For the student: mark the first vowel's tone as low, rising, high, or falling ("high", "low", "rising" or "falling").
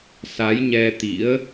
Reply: rising